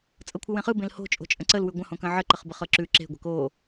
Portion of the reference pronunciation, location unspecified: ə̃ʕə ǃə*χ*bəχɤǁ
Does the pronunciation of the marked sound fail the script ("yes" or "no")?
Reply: no